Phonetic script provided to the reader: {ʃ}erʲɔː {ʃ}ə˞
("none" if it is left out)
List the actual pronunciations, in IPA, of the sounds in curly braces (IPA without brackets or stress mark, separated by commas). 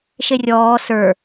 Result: ʃ, s